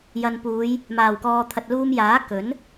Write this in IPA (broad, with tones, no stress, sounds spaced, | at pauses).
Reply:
j ɐ˨ n p uː˨˧ j | m aː˨˩ w k ɔː˨ t̪ʰ ɐ˨ t̚ l uː˧ m j aː˨˥ k ɵ˨˥ n